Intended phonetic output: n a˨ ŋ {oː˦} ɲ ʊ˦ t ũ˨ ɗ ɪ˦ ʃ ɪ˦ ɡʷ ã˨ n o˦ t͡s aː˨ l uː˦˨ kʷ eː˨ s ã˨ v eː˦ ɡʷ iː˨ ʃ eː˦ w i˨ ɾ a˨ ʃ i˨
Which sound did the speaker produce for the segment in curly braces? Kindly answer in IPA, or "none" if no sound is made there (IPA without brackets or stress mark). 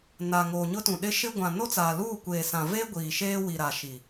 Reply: oː˨